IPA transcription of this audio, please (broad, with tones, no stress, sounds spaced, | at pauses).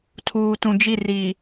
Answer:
tʰ uː˨ t ũ˨ d͡ʒ i˦˨ r i˨